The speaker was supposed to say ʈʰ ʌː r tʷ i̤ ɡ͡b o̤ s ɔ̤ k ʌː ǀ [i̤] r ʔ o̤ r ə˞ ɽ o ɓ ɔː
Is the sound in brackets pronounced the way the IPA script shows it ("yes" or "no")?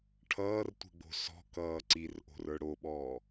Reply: no